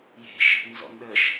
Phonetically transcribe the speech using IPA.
je̤ʃ | nzɔ̰nɗəʃ

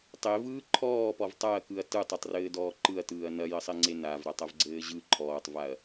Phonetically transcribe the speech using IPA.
tˤevɯː ǃʰɔːpɔv tˤaɐ̯kɯɐ̯ tɯtˤɘtˤrɘːdɔː ǃɯɐ̯tɯːɐ̯ nɐjɘsˤeŋ͡ǀe navɾatˤɐvɡ͡ǀɘː ʑɯ ǃʰɔːtˤvaɐ̯

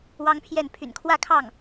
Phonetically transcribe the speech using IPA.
wɑ˥ŋpʰjɛ˥˩n pʰy̰˨˩nkʰwä˥˧kʰɑ˥˩ŋ

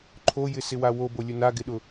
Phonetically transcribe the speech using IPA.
ǃʰojɪsɪwa wobolʲʊ naɡɪɗʊ

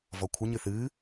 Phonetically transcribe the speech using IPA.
vɔkʷʰəɲɨ θɨː

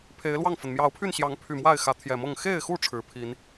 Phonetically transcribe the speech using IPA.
pʰe˨˦ɪ̯lwɑ˥˨ŋfə˩n mjɑ˨˦ʊ̯pʰy˥˨nɕjɑ˨˦ŋ pʰy˨˩mwa˥˨ɪ̯ xä˨˦t̪ʰjɛ˨˩mɤ˥˨ŋ xe˥˨ɪ̯xu˥˨ ʈ͡ʂʰɻ̩˨˦ pʰi˨˦n

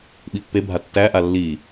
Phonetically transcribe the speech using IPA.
ɓipːebʱa tːæʔa lːi

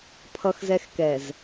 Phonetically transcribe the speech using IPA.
pʰʌ˨xzɛ˨xkɛ˨z

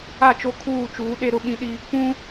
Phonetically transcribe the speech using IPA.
a˦˨t͡ʃo˦kʰuː˦˨t͡ʃuː˨˦ ɗe˦ɾʊ˦ɓĩ˦ɗi˦ | pũ˦

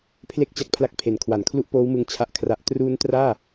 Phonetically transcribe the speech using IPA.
pʰle˥˩k̚t͡ɕa˦˥k̚pʰla˦˥k̚pʰe˨˩n kʰwa˩˦nkʰlu˥˩ʔpoː˦˥wmɯ˧ŋ t͡ɕʰa˥˩ʔkʰra˦˥ʔ truː˦˥ntraː˥˩

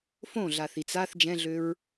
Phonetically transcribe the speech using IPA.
fõɮaθi t͡saθ d͡ʒɛ̃ɮøɹ

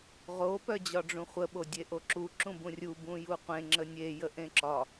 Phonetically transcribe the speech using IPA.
ʁo pœd͡ʑɒɖ͡ʐũχʷə ɓodʲeʔoǁu ǁũbũrʲu bũjuqʷẽ ŋ͡ǁənʲe jəʔẽǁɒ

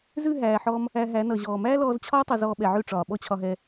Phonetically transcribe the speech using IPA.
zʉ˦˨ɦæː˨ħɔː˧m | æ˧ɦæ˨˦ nʌ˧ʑɔː˧ mæː˦lɔː˧zt͡ɕʰɒː˦ tˤʌ˧zɔː˧ɓɛ˨ʕʉ˦˨ ʈ͡ʂɒː˨ɓɔ˦ t͡ɕʰɒ˧ɦɛ˧

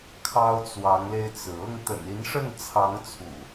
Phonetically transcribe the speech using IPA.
kʰɑ˦ʊ̯t͡swɑ˨˦ŋle˧ɪ̯t͡sɹ̩˩ ɤ˥˨ŋt̪ə̰˨˩ni˨˦nʂə˥˨n t͡sʰɑ˨˦ŋt͡sʰṵ˨˩

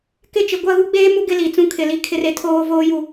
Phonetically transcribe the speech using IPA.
kɪ˦t͡ʃɪ˨ ɡʷa˦˨ɣu˦ ɡ͡beː˦mu˦ ɡɪ˦li˨ t͡sũ˦kʰɪ˨li˦ kʰɪ˦re˦ tʰoː˦voː˦ju˨

